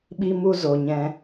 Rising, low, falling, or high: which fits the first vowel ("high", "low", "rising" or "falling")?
high